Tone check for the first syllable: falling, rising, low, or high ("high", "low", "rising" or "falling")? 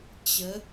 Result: rising